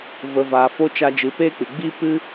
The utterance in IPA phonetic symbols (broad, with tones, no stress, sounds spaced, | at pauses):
v ə˨ v aː˨ f o˧ t͡ʃ a˧ d͡ʒ ɨ˨˦ p eː˦ k͡p ɨ˨ ɡ͡b i˦ p ɨ˦